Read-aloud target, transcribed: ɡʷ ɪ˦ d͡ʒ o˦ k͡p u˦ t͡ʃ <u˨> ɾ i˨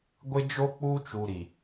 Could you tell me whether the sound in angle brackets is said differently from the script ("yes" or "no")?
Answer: no